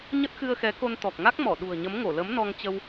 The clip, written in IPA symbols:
ɲə˦˥t̚xɨ˧ə̯xɛ˨˦ko˧n t̪ɔ˨˩k̚ŋa˦˥k̚mɔ˧˩ ɗṳ˨˩ə̯ɲə˨˦mŋo˧˩lə˨˦m nɔ˧ŋ t͡ɕə˧w

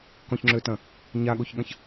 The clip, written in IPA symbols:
kɔ̃çŋ͡ǁøtɐ̃ | ɲaɠoçɠɐ̃ç

